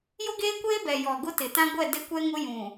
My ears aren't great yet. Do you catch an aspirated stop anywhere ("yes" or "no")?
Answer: no